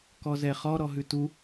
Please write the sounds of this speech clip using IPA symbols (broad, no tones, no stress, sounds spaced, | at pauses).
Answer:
k ɔ z ɛ χ ɔ ɾ ɔ ɦ ʉ t u